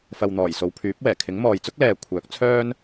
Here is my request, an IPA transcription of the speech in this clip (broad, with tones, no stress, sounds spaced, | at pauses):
f ɐ˨ w n̪ ɔː˨˩ j s o˨ w pʰ yː˨˥ p̚ w ɛː˨˩ kʰ ɪ˨˥ ŋ m ɔː˨ j t͡s ʊ˥ k̚ l ɛː˨ kʷʰ œː˨˥ k̚ t͡sʰ œː˥ n